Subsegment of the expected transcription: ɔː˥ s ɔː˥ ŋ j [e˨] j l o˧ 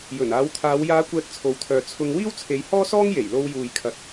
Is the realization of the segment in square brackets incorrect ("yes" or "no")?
yes